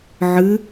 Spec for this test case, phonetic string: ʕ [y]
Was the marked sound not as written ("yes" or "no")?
yes